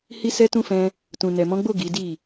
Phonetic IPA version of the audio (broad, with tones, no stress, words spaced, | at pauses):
hi˦sɛ˦tũ˦ fɛ̃˧ | tũ˨nɛ˨mɔ̃˨˦ɡ͡bo˦˨ ɡi˨˦di˦˨